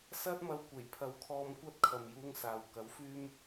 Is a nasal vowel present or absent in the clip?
absent